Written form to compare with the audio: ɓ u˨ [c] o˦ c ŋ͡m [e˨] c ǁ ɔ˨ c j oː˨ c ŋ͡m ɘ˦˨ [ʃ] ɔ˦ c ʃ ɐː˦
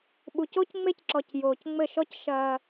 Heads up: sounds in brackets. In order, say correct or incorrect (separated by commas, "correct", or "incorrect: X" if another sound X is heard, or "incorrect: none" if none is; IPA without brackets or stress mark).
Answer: correct, incorrect: e˦, correct